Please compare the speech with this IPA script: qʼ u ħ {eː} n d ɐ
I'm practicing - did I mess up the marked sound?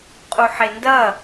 yes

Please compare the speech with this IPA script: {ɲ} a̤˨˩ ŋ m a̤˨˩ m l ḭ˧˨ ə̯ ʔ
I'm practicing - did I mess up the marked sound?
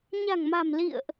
no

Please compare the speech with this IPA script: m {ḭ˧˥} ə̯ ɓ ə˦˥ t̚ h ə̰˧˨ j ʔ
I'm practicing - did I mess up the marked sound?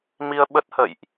yes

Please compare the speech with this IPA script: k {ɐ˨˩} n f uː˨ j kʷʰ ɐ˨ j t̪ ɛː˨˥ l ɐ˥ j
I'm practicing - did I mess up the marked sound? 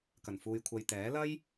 no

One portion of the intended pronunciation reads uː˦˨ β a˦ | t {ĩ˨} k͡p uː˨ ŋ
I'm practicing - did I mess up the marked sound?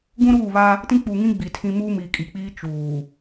yes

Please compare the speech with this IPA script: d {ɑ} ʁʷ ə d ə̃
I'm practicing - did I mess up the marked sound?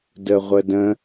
yes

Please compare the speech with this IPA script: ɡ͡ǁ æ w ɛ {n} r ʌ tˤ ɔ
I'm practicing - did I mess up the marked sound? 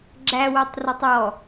yes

